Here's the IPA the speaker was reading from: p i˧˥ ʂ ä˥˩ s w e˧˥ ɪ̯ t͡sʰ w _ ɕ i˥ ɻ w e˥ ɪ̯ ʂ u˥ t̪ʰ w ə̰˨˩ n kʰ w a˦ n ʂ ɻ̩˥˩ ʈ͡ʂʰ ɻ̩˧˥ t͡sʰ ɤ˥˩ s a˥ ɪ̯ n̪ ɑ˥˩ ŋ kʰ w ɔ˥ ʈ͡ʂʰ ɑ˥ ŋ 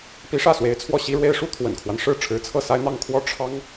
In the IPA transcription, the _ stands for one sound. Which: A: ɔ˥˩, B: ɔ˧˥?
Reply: A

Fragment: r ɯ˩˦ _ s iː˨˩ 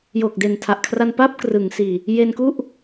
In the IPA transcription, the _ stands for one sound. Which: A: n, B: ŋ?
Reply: B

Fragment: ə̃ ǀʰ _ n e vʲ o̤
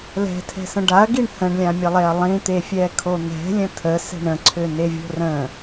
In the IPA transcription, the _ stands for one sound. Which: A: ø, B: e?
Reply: A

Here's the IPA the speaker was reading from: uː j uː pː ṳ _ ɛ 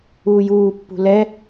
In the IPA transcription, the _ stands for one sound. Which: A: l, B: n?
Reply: A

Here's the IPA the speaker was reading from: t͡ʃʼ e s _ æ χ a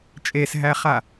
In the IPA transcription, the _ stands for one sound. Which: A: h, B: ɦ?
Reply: B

